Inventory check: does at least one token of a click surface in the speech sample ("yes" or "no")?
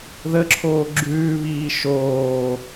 yes